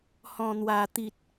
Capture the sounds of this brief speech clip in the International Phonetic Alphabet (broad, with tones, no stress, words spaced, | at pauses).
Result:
hɔ̃˨˩n̪wa˨˩ t̪i˨t̚